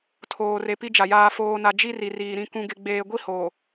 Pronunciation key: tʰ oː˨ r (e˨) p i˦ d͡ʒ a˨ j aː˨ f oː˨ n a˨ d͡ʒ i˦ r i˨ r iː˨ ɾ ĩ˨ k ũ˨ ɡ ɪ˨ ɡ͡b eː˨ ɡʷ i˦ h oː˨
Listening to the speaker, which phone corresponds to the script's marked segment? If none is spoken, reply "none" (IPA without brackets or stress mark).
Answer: e˨